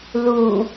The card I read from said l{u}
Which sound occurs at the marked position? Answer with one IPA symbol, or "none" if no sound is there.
u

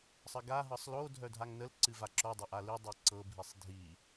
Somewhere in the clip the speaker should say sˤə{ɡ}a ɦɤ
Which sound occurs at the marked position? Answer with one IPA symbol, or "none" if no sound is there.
ɡ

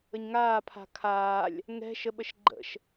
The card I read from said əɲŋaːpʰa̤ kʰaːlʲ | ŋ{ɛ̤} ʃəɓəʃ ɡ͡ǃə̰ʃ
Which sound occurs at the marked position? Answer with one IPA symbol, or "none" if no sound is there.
ɛ̤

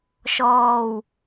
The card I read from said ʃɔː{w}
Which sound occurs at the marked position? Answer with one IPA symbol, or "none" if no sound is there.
w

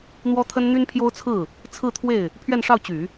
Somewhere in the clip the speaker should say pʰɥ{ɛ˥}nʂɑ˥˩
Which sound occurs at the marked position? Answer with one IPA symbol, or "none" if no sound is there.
ɛ˥˧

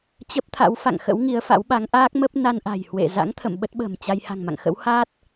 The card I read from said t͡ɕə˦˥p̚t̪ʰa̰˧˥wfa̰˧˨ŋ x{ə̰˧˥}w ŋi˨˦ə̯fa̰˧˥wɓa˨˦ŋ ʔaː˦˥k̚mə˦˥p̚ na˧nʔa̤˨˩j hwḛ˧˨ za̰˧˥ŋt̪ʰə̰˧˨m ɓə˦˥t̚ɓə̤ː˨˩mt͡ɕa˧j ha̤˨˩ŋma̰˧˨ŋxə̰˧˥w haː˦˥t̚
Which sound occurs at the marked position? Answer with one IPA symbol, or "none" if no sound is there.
ə̰˧˥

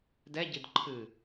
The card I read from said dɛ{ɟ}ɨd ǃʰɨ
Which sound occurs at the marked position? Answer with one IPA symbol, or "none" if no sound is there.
ɟ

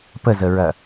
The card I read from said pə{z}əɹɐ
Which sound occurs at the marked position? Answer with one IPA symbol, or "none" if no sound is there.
z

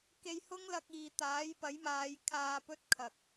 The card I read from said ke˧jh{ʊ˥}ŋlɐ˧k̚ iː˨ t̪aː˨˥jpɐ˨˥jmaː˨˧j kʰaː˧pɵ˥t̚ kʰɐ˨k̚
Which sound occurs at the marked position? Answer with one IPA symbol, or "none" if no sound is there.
ʊ˥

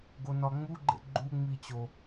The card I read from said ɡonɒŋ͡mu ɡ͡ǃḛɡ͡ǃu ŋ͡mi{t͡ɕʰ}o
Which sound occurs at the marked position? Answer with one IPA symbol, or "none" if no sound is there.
t͡ɕ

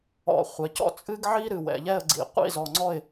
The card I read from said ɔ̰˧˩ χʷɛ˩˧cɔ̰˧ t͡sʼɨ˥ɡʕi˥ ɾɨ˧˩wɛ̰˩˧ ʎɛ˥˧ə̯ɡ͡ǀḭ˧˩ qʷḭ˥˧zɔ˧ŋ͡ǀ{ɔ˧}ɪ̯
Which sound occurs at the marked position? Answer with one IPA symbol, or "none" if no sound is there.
ɔ˥˧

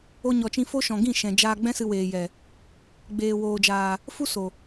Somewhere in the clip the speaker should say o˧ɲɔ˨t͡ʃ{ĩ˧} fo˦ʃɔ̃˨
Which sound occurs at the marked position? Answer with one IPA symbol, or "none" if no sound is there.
ĩ˧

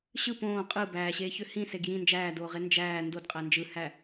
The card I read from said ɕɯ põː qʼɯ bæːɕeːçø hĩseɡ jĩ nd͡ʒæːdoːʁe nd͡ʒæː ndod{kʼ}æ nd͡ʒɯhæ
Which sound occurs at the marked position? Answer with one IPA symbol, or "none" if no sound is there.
qʼ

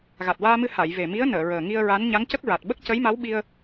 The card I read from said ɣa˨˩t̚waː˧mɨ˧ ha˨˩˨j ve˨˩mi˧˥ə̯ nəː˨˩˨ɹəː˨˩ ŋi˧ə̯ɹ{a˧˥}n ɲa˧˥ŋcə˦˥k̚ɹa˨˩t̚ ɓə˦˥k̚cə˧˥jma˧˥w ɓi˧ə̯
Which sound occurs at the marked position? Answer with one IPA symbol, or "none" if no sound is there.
a˧˥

